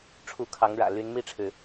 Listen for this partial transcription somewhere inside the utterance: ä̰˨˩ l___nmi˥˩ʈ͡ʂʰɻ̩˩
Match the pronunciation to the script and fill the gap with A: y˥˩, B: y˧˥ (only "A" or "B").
B